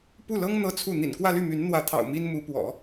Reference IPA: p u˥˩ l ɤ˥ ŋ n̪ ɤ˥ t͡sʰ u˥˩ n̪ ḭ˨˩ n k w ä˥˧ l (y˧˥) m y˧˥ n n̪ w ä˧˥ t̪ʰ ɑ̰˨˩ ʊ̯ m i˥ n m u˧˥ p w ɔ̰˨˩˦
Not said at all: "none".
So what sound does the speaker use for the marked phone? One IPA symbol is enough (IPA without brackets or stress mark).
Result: y˥˩